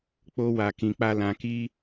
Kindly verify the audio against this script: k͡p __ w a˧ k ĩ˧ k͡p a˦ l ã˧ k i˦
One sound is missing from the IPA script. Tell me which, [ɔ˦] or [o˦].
o˦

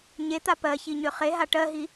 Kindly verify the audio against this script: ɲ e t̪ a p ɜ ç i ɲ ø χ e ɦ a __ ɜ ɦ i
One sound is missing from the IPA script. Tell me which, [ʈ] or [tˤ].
ʈ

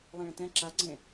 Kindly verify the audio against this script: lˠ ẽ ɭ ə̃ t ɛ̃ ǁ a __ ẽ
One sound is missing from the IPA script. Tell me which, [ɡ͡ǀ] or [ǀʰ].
ɡ͡ǀ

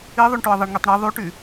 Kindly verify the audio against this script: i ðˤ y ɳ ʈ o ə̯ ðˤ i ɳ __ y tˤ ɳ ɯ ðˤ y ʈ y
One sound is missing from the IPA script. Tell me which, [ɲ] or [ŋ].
ŋ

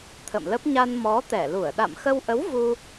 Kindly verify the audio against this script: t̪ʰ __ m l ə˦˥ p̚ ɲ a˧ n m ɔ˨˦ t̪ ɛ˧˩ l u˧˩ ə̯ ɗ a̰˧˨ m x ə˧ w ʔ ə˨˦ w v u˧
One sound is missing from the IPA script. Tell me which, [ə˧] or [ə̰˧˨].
ə̰˧˨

